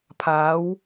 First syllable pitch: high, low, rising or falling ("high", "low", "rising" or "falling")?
rising